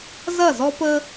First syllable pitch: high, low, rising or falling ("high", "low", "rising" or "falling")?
falling